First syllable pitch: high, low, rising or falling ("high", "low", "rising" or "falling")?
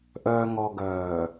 low